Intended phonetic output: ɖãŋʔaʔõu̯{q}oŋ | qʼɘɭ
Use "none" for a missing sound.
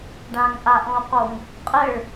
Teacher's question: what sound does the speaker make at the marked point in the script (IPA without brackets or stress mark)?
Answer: q